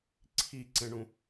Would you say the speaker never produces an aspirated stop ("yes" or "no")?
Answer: no